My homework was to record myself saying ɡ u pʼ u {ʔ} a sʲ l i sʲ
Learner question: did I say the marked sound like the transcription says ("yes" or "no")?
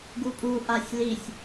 yes